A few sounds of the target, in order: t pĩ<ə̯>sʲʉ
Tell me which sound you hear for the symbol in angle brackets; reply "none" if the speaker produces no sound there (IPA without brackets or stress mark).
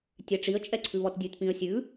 ə̯